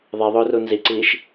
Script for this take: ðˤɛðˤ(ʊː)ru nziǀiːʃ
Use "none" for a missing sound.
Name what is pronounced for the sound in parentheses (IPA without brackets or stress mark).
ʊː